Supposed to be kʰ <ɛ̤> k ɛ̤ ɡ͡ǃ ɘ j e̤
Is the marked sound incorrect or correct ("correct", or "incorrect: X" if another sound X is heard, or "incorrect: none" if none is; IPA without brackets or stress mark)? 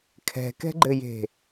correct